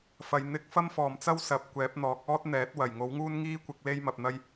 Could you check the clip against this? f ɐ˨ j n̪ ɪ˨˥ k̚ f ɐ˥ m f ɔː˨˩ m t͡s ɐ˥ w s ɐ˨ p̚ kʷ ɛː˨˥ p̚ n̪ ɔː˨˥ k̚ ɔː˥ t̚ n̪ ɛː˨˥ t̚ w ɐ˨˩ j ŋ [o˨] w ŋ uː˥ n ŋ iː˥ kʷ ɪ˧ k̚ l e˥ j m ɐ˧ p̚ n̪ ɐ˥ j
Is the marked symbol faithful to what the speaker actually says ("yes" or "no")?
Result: no